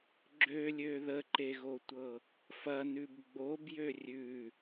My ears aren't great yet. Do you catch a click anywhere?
yes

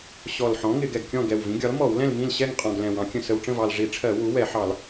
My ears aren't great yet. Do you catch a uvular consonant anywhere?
yes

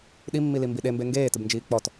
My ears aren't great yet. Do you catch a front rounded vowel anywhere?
no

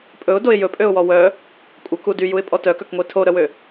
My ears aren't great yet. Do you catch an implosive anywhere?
no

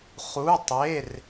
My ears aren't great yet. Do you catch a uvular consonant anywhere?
yes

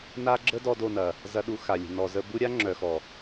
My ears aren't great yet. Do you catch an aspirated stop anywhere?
no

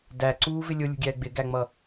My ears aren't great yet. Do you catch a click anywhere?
yes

